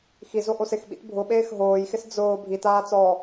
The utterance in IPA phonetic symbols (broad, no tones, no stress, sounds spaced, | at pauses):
x i z o ʔ o s ɪ x ɓ ḭ t bʱ ʊ ɓ eː x ɦ oː j x ɪ s d͡z ʊː bʱ i t aː t͡s ɔː